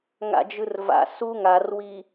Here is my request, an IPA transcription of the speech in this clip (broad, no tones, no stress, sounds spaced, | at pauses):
ŋ a̰ d͡ʒ ɯ r v a̰ s u ŋ a r w i